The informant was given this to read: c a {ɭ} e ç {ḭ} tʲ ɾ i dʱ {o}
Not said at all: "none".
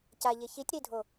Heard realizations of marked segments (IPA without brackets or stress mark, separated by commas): ʎ, i, o